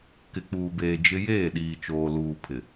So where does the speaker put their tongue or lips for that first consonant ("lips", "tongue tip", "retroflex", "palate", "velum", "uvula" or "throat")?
velum